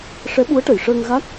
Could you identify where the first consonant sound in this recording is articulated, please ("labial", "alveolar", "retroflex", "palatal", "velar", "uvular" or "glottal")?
retroflex